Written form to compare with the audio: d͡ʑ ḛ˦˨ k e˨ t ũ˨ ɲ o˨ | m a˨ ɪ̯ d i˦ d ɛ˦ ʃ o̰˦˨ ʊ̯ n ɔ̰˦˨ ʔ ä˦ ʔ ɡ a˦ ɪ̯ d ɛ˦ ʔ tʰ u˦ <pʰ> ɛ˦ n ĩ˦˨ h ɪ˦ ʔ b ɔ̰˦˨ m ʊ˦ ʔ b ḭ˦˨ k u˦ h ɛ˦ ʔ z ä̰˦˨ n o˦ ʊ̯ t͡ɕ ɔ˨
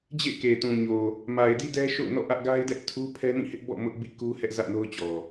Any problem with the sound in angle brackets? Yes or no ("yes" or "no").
no